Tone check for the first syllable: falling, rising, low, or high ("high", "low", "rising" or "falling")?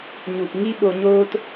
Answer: low